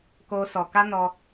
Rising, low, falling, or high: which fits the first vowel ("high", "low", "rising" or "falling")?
high